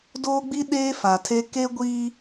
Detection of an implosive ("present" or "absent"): present